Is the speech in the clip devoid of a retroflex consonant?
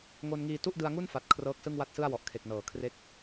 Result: yes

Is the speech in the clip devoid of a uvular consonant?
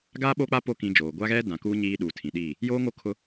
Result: yes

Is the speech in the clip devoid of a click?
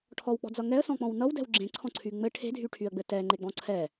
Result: no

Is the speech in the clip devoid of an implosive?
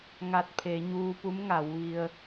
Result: yes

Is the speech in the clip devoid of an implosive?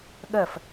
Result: no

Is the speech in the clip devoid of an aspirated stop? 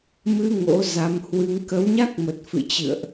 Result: yes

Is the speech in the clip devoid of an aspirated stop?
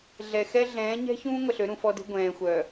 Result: yes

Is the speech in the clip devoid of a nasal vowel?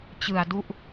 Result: yes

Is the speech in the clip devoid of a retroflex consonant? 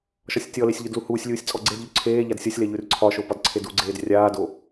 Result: yes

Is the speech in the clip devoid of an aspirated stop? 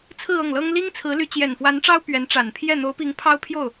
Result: no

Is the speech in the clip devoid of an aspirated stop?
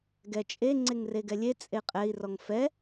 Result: yes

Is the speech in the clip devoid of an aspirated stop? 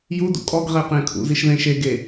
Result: no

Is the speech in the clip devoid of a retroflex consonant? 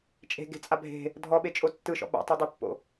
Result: yes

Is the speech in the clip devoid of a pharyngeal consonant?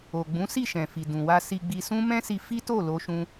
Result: yes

